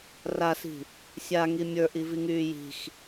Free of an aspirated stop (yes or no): yes